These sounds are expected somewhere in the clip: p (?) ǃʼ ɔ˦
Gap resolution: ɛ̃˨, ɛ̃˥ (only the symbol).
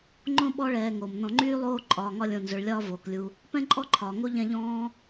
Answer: ɛ̃˥